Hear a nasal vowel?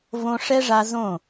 yes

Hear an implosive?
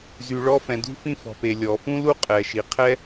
no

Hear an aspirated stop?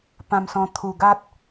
yes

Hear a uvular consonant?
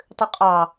yes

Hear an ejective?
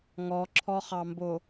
no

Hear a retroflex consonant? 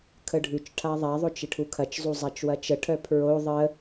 yes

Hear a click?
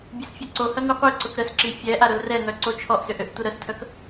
yes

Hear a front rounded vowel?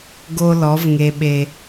no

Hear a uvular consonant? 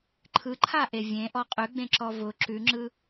yes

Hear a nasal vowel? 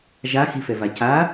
no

